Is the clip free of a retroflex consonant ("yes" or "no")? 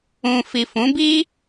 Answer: yes